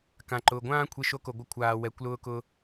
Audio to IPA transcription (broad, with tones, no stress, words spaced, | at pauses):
kã˨ǃʊː˨ɡʷãː˦ kʷʰe˧ʃo˧ko˨ ɡʷə˧ kʷʰaː˨ wɛ˨kʷlʊː˧ kʊː˧